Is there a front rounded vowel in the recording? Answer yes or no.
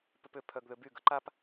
yes